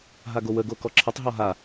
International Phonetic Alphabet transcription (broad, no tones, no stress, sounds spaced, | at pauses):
ɦ a ɡ o w ə ɡ o k ɔ ǁʰ ə tˤ ɦ ɔ ɦ a